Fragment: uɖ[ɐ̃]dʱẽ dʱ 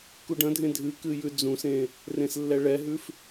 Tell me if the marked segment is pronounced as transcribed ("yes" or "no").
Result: yes